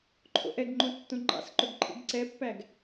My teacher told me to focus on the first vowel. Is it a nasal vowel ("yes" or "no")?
no